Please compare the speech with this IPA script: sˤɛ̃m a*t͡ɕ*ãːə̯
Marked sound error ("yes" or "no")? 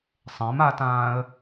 yes